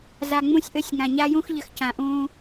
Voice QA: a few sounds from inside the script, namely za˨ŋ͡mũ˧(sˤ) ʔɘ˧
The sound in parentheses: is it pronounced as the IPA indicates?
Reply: no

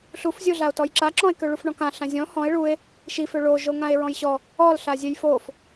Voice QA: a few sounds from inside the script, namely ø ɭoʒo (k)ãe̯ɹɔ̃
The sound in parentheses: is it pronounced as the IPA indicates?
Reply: no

